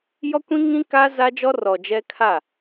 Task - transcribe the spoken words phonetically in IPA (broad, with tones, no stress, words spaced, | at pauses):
jɔ˦kʷĩ˦ ŋĩ˦kaː˦ za˦d͡ʒɔ˦ rɔ˨d͡ʒɛ˦ kʰa˦˨